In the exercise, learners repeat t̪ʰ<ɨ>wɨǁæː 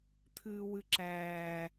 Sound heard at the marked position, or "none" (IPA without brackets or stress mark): ɨː